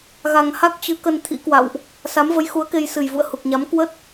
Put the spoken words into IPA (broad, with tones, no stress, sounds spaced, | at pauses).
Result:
ɣ a˨˩ ŋ h a˦˥ k̚ t͡ɕ ɨ˨˦ k ə˧ n t̪ʰ ḭ˧˥ k w a̰˧˨ w ʔ | s a˨˦ m v ə˨˦ j x u˨˦ ə̯ k e˧ j s ɨ˨˩ j v ṵ˧˨ ə̯ h u˨˩ k̚ ɲ a˨˦ m k w ə˦˥ t̚